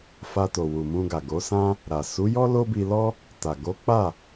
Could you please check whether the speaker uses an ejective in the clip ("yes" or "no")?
no